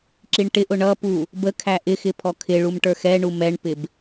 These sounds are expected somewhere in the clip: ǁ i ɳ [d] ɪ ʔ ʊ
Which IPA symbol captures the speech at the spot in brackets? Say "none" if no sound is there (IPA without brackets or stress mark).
ʈ